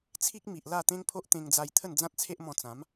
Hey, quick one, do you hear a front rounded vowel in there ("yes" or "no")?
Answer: no